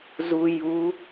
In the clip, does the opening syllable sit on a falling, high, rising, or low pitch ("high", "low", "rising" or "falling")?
low